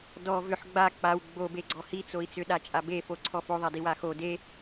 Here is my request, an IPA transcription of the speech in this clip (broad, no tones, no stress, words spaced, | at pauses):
dɔ vʏħ ɡ͡ba k͡paw ɡ͡bobeɡ͡ǀɔ hit͡soi̯ t͡sʏɗat͡ʃʼa befoǀʰɔ foðˤadiwa xo de